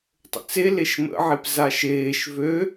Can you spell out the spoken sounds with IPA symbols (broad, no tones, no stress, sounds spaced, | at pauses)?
tˤ ə̰ t͡s e l e ʃ m ə̰ ʕ e p z a ʃ eː ʃ v ø